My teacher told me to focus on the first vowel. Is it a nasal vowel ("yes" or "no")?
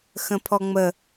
yes